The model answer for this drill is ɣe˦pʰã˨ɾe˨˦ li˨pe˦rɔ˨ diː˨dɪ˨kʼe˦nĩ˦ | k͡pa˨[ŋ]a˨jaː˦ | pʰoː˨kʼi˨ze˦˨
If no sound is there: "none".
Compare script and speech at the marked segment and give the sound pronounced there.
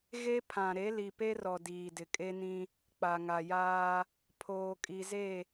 ŋ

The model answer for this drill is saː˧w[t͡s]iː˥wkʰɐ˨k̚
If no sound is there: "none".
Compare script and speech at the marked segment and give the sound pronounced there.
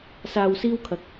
s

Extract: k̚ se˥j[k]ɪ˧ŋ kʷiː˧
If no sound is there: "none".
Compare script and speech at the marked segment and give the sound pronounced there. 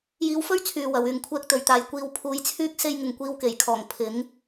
ŋ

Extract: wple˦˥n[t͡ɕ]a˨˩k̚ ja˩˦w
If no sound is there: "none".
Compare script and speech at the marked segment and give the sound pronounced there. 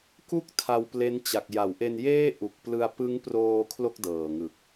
t͡ɕ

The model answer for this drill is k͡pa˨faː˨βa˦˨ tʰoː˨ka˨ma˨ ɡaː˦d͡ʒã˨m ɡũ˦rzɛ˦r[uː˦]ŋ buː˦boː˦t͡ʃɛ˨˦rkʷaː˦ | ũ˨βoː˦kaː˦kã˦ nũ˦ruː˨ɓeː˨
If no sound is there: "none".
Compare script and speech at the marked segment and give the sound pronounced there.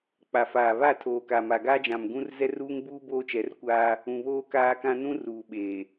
uː˦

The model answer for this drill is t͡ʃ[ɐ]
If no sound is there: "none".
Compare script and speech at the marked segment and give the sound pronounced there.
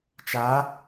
a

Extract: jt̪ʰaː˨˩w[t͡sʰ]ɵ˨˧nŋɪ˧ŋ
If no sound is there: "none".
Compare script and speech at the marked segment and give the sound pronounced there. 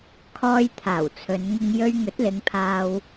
t͡sʰ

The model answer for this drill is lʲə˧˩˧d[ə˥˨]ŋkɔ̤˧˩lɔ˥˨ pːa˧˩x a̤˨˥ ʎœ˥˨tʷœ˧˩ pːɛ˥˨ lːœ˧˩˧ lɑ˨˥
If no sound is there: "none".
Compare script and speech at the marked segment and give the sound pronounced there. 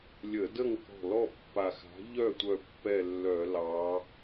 ə˥˨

